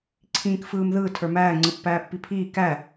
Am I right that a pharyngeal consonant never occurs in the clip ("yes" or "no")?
yes